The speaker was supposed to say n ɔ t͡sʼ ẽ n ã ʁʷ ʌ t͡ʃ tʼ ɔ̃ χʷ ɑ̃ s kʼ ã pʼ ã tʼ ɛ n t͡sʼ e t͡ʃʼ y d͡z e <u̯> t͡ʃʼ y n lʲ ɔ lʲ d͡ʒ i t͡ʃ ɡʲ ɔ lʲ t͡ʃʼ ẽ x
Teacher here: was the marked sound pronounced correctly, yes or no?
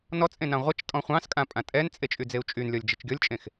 yes